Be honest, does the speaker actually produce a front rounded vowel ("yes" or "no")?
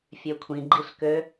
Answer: yes